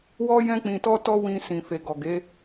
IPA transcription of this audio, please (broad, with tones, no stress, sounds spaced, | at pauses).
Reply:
w ɔ˦ j ɛ̃˦ k͡p ĩ˧ t ɔ˦ t ɔ˦ w ĩ˧ s ĩ˨ f e˨ ɡ ɔ˨ ɡ e˨˦